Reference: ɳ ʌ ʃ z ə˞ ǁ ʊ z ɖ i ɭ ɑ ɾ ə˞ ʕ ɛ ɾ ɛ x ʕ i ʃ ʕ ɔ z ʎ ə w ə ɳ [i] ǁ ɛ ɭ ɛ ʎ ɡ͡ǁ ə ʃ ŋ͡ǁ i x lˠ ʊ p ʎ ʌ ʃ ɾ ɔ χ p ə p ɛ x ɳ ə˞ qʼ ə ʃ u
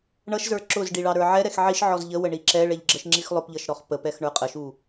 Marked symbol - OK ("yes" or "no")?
yes